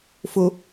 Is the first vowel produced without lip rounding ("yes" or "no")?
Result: no